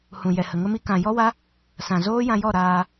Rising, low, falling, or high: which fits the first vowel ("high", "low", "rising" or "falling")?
low